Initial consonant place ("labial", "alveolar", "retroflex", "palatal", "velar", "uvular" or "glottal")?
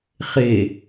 uvular